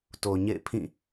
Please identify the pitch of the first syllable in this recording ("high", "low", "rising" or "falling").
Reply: low